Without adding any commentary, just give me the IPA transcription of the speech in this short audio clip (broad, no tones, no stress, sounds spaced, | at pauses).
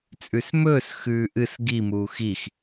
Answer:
t͡sʼ ʉ s m ɵː s x ʉː ʔ ɨ s ɡ i m uː x i x